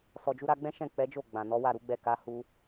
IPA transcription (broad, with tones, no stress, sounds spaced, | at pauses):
s ɔ˨ d͡ʒ u˧ ɾ a˧ ɡ͡b ɛ̃˦ ʃ ɛ̃˦˨ k͡p ɛ˨˦ d͡ʒ o˦˨ ɡ͡b ã˨ n ɔ˨˦ w a˦˨ ɾ u˨˦ ɡ͡b ɛ˦˨ k a˨˦ h u˧